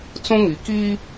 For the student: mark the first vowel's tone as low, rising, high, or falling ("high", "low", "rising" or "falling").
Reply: high